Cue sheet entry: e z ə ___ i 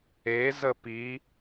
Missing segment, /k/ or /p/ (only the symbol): p